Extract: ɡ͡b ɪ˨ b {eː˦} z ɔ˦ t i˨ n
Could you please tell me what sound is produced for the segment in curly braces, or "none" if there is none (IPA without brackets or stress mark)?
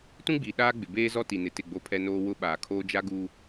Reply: eː˦